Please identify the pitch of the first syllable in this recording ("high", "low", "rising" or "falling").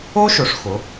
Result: high